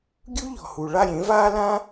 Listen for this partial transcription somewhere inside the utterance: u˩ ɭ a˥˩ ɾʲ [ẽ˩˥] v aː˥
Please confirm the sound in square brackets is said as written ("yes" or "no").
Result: yes